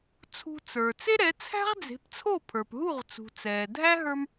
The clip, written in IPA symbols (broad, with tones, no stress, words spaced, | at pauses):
t͡sʰṳ˧t͡sə˞˩ t͡se˥ɾɛ˩˥t͡sʰæ̤˥ʁ d͡ze̤˩˥pt͡sʰo˥˩pʰə˞˩p ɦu˥˩ʁt͡sṳ˩ t͡sɛː˩dʱæ˥ ɦə˞˧m